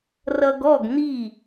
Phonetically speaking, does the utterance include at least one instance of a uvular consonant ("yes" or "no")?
no